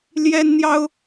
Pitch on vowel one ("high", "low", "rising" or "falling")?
high